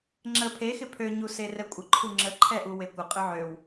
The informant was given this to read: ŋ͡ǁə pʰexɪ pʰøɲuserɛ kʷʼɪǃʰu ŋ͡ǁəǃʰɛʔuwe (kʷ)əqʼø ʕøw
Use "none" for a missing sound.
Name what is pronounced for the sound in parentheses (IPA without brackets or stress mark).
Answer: kʷ